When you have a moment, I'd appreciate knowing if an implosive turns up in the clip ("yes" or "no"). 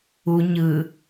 no